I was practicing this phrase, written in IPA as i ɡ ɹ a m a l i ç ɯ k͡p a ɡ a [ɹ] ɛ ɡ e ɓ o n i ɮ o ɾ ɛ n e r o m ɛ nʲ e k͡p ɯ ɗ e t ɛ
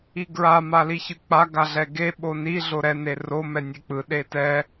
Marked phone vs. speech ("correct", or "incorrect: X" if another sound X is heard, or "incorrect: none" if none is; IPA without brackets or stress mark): incorrect: ɮ